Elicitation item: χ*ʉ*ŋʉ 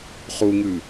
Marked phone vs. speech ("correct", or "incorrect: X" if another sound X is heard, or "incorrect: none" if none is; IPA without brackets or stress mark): incorrect: u